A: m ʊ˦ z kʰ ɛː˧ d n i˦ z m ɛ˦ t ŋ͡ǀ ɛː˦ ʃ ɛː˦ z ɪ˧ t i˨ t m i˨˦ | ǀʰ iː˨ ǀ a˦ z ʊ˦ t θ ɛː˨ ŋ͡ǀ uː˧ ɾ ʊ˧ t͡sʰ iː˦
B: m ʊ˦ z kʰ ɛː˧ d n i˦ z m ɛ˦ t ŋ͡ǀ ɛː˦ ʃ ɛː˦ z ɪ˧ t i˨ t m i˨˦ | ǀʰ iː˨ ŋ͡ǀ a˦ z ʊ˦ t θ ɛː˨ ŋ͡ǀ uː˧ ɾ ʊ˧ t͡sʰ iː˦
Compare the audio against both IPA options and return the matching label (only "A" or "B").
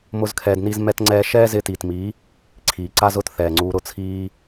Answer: A